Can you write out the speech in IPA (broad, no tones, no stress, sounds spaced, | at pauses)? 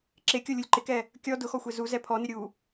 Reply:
ǁ e kʲ o lʲ u lʲ ǃ ɪ k ɛ | kʲ ɔ d ʊ x ɔ xʷ e z u z ɛ pʰ ɔ n ɪ ɾʲ u